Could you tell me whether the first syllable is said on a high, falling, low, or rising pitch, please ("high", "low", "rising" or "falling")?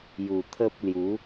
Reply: low